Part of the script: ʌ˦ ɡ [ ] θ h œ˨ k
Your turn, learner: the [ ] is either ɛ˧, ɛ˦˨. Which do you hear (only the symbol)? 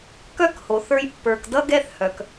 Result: ɛ˦˨